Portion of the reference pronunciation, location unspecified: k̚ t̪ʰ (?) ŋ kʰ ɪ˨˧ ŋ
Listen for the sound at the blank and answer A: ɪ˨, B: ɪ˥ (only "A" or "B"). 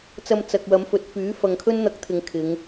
A